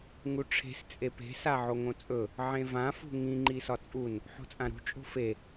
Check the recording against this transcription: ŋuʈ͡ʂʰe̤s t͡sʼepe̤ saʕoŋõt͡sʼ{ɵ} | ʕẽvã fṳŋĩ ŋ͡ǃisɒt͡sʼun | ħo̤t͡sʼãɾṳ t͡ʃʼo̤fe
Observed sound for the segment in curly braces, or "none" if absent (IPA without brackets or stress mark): ɵ